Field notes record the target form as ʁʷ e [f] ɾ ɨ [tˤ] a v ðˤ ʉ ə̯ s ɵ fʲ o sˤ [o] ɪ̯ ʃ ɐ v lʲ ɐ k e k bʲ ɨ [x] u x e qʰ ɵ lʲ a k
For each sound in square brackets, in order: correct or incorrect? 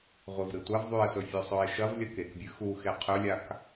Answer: incorrect: v, incorrect: tʷ, incorrect: ɵ, correct

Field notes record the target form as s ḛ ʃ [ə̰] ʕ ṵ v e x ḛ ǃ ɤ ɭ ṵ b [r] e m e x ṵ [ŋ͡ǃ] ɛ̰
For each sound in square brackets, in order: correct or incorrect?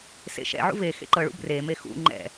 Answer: incorrect: ɛ̰, correct, correct

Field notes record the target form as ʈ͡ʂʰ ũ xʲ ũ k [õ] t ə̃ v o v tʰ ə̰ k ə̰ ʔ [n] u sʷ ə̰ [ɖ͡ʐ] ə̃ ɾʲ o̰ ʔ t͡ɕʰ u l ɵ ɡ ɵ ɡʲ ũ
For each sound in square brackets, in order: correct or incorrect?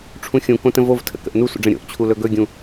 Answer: correct, correct, correct

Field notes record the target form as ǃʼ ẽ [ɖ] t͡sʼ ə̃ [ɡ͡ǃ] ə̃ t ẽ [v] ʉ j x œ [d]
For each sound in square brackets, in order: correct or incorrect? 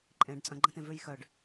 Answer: correct, correct, correct, incorrect: ɖ

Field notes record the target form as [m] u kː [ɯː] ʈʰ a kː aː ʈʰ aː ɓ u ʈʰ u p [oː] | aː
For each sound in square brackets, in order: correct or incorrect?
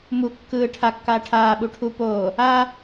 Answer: correct, correct, correct

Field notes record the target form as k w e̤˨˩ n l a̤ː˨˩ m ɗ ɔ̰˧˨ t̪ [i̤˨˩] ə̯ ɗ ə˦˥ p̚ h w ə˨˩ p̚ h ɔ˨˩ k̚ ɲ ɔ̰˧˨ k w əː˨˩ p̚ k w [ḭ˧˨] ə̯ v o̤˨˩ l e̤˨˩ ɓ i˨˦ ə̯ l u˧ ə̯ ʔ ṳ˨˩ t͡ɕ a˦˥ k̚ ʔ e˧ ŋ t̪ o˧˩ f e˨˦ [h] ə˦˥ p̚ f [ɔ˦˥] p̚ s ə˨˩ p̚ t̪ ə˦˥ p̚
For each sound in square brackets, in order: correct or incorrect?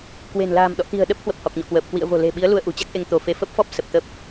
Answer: correct, correct, incorrect: f, correct

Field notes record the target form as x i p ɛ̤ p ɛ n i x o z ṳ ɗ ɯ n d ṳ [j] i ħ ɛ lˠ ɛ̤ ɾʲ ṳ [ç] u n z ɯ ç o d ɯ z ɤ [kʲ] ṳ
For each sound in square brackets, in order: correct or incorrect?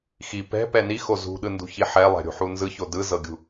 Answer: incorrect: ç, incorrect: ħ, incorrect: ɡʲ

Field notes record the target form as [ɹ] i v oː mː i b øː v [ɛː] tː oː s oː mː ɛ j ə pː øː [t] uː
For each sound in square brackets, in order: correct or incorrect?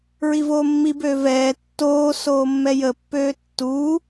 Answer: correct, correct, incorrect: tː

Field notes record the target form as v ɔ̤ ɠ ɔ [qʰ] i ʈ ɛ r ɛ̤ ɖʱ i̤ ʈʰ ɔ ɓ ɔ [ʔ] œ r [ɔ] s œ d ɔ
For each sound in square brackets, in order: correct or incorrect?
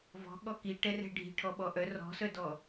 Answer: incorrect: k, correct, incorrect: ɔ̤

